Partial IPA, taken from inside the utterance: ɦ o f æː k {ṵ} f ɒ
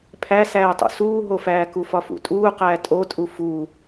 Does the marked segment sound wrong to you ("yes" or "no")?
yes